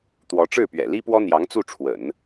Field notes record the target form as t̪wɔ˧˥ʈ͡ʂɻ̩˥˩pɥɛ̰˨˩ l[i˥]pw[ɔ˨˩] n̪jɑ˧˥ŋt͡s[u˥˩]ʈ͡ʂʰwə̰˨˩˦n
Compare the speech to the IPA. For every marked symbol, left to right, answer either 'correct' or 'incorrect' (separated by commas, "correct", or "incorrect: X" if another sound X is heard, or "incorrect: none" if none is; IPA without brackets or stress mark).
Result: correct, incorrect: ɔ˥, correct